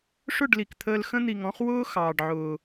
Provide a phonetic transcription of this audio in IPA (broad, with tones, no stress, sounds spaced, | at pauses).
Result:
ʂ ʊ˦˨ ɖ l i˨ k t̪ʰ əː˧ l x ə̃˧ n̪ i˨ ŋ ɔ̃˧ χ w ʊː˦ x ɑː˨ ɖ ʕ ʊː˨